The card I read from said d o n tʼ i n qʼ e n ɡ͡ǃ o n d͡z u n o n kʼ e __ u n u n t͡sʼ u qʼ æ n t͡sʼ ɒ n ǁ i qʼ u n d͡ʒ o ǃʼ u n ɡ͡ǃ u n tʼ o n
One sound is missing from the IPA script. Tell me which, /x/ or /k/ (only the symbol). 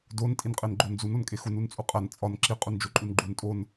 x